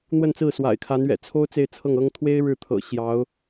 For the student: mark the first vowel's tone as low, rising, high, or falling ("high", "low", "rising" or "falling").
falling